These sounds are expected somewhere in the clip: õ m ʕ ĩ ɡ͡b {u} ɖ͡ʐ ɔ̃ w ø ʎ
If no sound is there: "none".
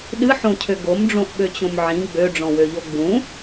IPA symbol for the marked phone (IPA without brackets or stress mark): ø